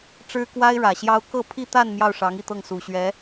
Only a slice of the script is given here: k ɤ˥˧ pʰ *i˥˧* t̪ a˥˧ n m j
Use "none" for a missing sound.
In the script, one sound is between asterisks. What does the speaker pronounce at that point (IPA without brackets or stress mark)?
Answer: i˥˧